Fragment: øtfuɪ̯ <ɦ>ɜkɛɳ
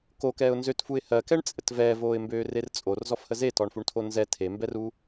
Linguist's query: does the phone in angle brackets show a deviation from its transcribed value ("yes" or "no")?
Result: yes